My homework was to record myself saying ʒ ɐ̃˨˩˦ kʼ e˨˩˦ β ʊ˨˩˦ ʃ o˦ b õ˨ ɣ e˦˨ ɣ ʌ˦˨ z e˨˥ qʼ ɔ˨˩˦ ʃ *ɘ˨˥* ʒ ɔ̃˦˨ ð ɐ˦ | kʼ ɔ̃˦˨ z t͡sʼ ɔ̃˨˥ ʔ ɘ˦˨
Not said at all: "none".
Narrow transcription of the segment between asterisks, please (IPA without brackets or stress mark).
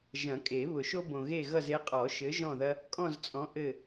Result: ɘ˨˥